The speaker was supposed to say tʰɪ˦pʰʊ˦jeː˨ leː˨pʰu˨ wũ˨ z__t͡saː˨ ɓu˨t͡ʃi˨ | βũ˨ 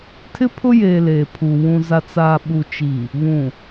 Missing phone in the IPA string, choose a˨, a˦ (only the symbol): a˨